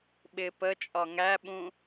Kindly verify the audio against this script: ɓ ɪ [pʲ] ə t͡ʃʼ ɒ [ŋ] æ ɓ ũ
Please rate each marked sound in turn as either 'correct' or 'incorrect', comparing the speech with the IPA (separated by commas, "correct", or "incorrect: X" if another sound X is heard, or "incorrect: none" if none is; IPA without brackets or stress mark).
incorrect: p, correct